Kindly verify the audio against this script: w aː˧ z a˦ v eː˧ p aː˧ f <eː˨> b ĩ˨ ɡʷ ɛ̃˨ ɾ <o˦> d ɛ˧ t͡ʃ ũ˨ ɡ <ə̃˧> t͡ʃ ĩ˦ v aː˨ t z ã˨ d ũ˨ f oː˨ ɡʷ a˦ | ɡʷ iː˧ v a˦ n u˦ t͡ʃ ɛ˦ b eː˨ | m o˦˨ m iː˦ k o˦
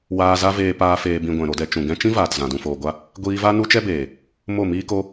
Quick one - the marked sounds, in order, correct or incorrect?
correct, incorrect: o˧, incorrect: ɛ̃˧

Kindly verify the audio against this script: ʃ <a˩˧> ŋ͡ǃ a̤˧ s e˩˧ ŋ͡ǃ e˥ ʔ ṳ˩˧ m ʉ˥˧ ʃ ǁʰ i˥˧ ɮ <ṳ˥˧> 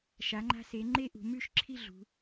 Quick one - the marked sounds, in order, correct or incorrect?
correct, incorrect: ṳ˩˧

